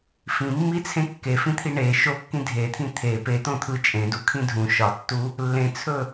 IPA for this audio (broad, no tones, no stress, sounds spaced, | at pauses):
f ĩ mː i t͡sʰ ẽ kː e f ĩ t̪ʰ i ɳ e ʃ o kː ĩ dʱ e t̪ʰ ĩ t̪ʰ e p e t̪ õ t̪ʰ ɯ t͡ʃʼ ẽ d u kʰ ĩ dʱ ũ ʃ ɒ tː u | lː ẽ t͡sʰ ɵ